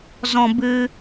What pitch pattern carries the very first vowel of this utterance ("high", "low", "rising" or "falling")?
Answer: low